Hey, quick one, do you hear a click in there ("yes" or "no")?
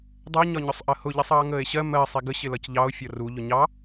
no